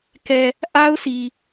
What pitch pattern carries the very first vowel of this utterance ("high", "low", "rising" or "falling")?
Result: low